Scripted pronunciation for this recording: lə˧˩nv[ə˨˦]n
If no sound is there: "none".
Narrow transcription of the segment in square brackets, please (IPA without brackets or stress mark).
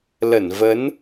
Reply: ə˨˦